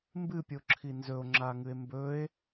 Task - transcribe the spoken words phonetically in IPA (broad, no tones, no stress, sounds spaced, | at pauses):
m b ɨ pʲ o ǁʰ i n z ɵ o̯ ŋ͡ǁ a ŋ ɨ e̯ m b ɵ e̯